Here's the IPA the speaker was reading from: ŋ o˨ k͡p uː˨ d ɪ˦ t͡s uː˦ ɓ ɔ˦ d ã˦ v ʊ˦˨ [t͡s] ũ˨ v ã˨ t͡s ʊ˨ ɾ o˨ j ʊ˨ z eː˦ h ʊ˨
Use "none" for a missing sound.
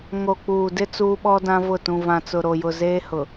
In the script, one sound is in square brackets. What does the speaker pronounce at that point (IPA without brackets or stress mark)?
t